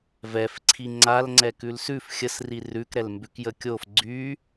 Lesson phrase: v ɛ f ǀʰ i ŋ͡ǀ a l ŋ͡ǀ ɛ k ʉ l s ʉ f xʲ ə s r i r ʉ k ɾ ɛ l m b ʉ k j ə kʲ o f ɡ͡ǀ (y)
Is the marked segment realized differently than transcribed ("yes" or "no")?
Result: no